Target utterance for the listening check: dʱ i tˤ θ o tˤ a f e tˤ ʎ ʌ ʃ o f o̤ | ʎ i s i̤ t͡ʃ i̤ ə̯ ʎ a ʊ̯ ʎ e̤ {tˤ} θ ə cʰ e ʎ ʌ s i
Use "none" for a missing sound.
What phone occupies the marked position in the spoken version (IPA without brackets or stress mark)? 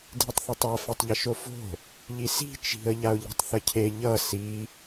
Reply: tˤ